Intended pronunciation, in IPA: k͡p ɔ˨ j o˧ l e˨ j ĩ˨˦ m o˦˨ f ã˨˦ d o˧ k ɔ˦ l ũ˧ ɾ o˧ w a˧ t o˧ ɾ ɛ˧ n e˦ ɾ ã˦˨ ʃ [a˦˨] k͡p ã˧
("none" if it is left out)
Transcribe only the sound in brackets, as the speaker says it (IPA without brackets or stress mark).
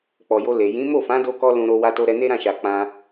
a˨